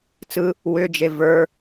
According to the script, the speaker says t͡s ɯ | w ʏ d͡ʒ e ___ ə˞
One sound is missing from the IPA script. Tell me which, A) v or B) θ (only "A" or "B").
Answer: A